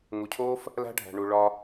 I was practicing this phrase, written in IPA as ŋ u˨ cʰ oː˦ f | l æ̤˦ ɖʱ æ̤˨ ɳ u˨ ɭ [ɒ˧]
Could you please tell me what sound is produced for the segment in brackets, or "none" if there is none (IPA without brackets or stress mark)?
ɒ˧